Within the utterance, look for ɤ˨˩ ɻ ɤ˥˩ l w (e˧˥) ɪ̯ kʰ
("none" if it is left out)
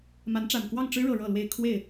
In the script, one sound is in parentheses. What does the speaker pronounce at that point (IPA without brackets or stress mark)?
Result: e˥